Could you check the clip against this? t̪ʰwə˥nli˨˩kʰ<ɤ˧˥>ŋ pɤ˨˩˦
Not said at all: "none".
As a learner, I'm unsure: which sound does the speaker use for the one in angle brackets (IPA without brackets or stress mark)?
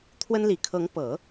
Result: ɤ˧˥